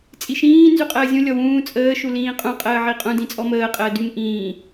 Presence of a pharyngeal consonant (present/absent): present